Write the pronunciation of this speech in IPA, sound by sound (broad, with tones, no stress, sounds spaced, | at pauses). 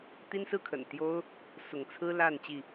t̪ i˦ n s ɹ̩˥˨ kʰ ə̰˨˩ n t̪ j o˦ ʊ̯ | s ʊ˨˦ ŋ t͡sʰ ɹ̩˦ l a˥˨ n t͡ɕ i˥˨